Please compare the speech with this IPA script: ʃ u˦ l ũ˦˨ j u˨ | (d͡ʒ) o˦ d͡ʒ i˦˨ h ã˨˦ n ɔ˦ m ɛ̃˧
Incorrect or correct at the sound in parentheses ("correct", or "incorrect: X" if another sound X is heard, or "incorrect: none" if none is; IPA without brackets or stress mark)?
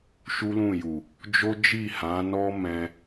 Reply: correct